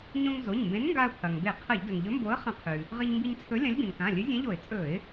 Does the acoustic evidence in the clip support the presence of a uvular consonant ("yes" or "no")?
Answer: yes